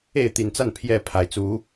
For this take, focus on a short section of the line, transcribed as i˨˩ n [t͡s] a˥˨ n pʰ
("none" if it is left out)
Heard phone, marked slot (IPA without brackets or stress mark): t͡s